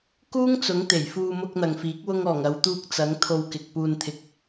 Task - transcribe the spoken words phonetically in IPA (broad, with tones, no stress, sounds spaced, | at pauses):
k uː˥ ŋ t͡s ʊ˨˥ ŋ t̪ e˨˩ j f uː˧ m ʊ˧ k̚ n̪ ɐ˨ ŋ f iː˨˥ k̚ w ʊ˧ ŋ ɔː˨˩ ŋ ɐ˨˧ w t̪ uː˧ k̚ t͡s ɐ˨˥ ŋ t̪ʰ o˨˧ w k ɪ˨ k̚ p uː˨ n t̪ʰ ɪ˨˥ k̚